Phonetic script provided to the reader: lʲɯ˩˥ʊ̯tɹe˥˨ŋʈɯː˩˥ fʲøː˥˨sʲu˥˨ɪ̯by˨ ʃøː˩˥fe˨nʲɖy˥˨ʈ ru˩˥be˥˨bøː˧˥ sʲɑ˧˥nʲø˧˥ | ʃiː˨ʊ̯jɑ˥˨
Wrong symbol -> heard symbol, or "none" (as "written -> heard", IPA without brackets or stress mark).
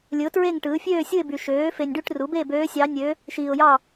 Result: none